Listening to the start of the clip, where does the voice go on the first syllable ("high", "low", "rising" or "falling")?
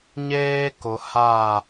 high